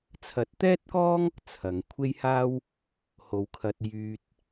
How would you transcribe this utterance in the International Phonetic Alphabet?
t͡sʰ ɐ˨˥ t̚ t̪ ɛː˥ t̚ k ɔː˥ ŋ | t͡sʰ ɐ˨˧ ŋ kʷʰ e˥ j h aː˥ w | h o˨˧ w kʰ ɐ˧ t̚ j yː˧ t̚

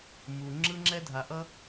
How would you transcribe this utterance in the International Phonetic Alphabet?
m u˨ ŋ͡ǁ ɯ˦ ŋ͡ǁ ɛ˦ dʱ a˨ ʔ ʌ˦

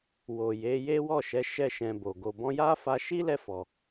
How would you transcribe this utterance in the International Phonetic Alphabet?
w o˨ j e˨˦ j e˦ w ɔ˦˨ ʃ ɛ˨˦ ʃ ɛ˦ ʃ ɛ̃˧ b o˨ ɡ o˨ b ɔ̃˧ j a˦ f a˧ ʃ i˦ l ɛ˦˨ f ɔ˨

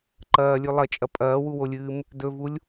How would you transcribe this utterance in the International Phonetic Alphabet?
ǃ ɐː lʲ ʉ lˠ ɐ t͡ʃʼ ɐ pʼ ɐː w u w o lʲ ɨː m | d ɵ v u lʲ

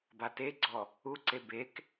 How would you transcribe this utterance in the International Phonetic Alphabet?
b a t e ɡ͡ǀ ɔ | u ǀ e b e k

